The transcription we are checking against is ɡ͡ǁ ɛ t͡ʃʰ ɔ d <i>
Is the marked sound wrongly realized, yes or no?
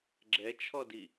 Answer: no